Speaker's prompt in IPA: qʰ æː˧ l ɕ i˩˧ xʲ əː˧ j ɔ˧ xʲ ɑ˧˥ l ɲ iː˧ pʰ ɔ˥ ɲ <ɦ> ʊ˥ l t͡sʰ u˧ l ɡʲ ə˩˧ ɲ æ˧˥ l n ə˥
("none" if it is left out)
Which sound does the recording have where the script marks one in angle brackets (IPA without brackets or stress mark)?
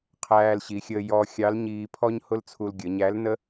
h